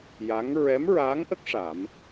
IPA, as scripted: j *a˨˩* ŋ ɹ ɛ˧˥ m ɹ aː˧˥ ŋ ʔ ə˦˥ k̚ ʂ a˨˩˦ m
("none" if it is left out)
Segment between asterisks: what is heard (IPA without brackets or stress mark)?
a˧˥